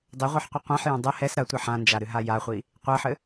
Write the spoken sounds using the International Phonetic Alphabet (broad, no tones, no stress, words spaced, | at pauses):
dˤɘʁʷɨħ qʷiqʷãħjã dˤɘ hɛs ɾɐtʷe ħãnd͡ʒa ɾɨɦajaχʷi | qʷɛħɘ